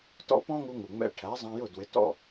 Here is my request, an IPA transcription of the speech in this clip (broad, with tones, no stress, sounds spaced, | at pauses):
t ɔ̰˥ p ɔ̃˥ ŋ u˧ ŋ u˩ ŋ͡m ɛ̰˧ ʈʰ æ˩˥ zˤ ɑ̃˧ j ʊ˥˩ d w ɪ˩˥ t ɔ̰˥˩